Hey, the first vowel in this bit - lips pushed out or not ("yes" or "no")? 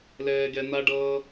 no